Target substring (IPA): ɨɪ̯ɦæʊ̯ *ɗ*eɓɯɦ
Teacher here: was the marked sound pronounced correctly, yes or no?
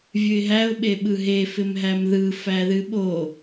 no